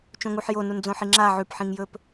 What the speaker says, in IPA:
t͡ʃ õ ŋ u ħ j o n u n d͡z õ ħ i ŋ͡ǁ a ʕ ʉ p ħ ĩ ŋ j ɵ p

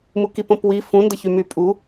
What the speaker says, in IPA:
m u k i p õ p w i f ũ n d ə ç y m y pʼ u

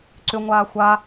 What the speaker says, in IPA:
ǀ ʏ ŋʷ aː xʷ a

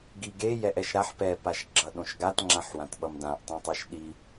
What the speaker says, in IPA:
ɡ i ɡ e j ɛ ʔ ɛ ʃ ɾ a ħ p ɛ p a ʃ ɡ͡ǁ ʌ ɗ õ ʃ ɡ a t ŋ͡ǁ ã ħ w ã t ɓ ʌ m d ã ʔ tˤ ũ tˤ ɯ ʃ ɗ i

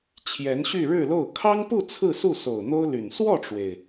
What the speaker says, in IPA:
t͡ɕʰ j ɛ˧˥ n ɕ y˥˧ ɻ ɻ̩˥˧ l o˥˩ ʊ̯ kʰ ɑ˥ ŋ p u˥˧ t͡sʰ ɹ̩˥˧ s u˥˩ s o˨˩ ʊ̯ n̪ o˥ ʊ̯ l y˨˩ n s w ɔ˥˩ ʈ͡ʂ w e˩ ɪ̯

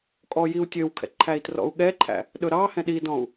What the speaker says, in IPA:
kʼ ɔ j i u̯ tʲ ø w kʰ ɛ̰ ǃʰ æ i̯ t r ɔ̰ u̯ ɠ ɛ ǃʰ æ̰ | ɗ ɵ ɾ ɑ h ɛ̃ ɗ i d ɔ̃ u̯

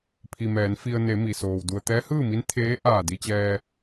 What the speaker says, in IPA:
pʰ i˩ m ɛː˩˧ n f i˧ ə̯ n e˩˧ m i˩ s oː˩ w d u˩ ə̯ t̪ ɛː˧˥ h ɯː˥˨ m i˧˥ n t̪ʰ eː˧˥ ʔ aː˧˩ d i˧ t͡ɕ ɛː˧

